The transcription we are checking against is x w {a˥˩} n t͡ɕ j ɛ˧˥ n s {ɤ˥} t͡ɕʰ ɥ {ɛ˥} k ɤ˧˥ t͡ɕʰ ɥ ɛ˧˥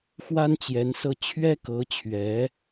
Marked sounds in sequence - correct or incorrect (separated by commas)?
incorrect, incorrect, correct